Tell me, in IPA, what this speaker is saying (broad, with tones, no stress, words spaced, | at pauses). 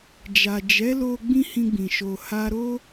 d͡ʒa˨d͡ʒɛ˨˦lo˧ ɡ͡bĩ˦hĩ˧ɡ͡bĩ˨ ʃo˨ ha˧ɾo˦